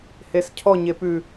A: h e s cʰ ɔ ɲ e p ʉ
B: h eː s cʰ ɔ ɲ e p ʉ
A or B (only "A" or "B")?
A